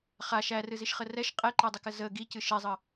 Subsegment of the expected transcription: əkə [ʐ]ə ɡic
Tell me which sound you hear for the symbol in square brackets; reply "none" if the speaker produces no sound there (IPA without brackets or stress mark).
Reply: z